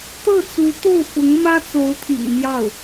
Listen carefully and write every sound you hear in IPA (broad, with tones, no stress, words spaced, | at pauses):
t̪ɤ˥˩t͡su˧˥t̪o˥˩ʊ̯fʊ˧˥ŋ mä˥ t͡so˧˥ʊ̯t̪ʰḭ˨˩ŋmjɑ˥˩ʊ̯